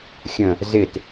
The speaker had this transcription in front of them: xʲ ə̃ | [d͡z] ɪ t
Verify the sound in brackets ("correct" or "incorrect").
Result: incorrect